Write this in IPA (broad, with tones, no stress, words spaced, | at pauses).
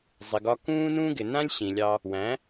zˤɪ˨ɡɒ˧ kũː˦nũ˦ ɡɪ˨nã˦lʲ ɕĩ˨lʲɑ˧ | wæ̃˨˦